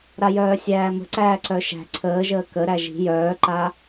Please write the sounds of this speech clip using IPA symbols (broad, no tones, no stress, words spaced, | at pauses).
ɾajœːsʲæːmə̤ ǀæːǀœʃæ̤ ǀʰəːʒəː kəɾæ ʒi̤ jœːǃa